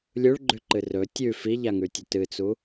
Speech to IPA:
lʲuɭɡ͡ǃʉǃɨ rɵ tʲʉ fiʎaŋʉtʲɵ tɨt͡su

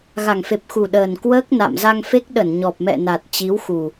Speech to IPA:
ɣa˨˩ŋfe˨˩p̚xu˨˩ ɗəː˨˩nkwəː˦˥k̚ na̰˧˨mza˧ŋfe˦˥k̚ ɗə˧˩nɲɔ˨˩p̚mɛ̰˧˨ na˨˩t̚t͡ɕi˨˦wxu˨˩

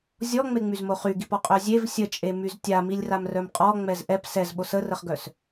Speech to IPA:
zʲɔŋ͡meŋ͡myzmo χyɡipɔqʼœ zʲev sʲət͡ʃʼemyz tʲamilʲramrœm qʼɔŋ͡mɛz ʔɛp sɛzɓo sərəχɡœs

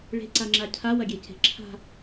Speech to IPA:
ɭe̤ǀaŋ͡ǁa cʰawɐɡʲece̤ ǁʰa̤

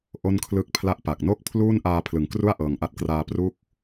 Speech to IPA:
ʔo˥˩nkʰlɯ˥˩k̚pʰla˥˩ʔpa˨˩k̚ no˥˩k̚ pʰluː˥˩nʔaː˧ pʰlɯ˩˦ŋkru˥˩a̯ ʔɤː˨˩ŋʔa˦˥t̚kraː˧ pru˦˥k̚

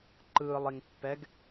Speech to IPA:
ǃɯːlˠiŋpːɛɡ

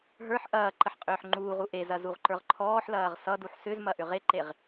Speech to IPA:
ɦə˞ħ ʔɐː ǃəħqʼʏːħŋ͡ǃuːʁu ʔezɐ zuʁǃə˞ʁǃʰɔːħlɐːʁ sʌduħ sʏzmɐ ʔʏʁeǃeʁ

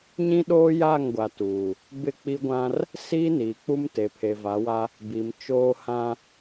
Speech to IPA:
ɲĩ˦ɗoː˦ja˦˨ŋɡʷa˨ tuː˨ | bɪ˦˨k͡pi˦ɡʷã˦r | siː˦niː˨k͡pu˦m te˨pʰe˨va˨˦wa˦ | bi˨m t͡ʃoː˦hã˦

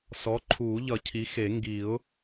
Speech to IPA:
sɔ˩˥ǃʰuː˨˩˦ʎʌ˨˩˦ cʰi˩˥xe˨˩˦ ŋɡi˨˩˦ʊ̯

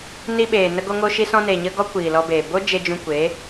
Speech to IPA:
ni˧ɓeː˨ nə˧ɡo˧ŋo˧ʃi˧ sɔ̃˧ne˨ɲə˧ ɡɔ˦kʷi˨lɔ˧be˨ bo˦ d͡ʒe˧d͡ʒũ˧kʷe˨˦

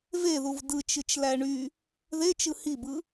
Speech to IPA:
veðuv dɯt͡ʃɯt͡ʃlæ ɳy | ðet͡ʃɯ hibɯ

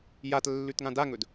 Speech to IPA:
jat lːʉtŋãdaŋɵd

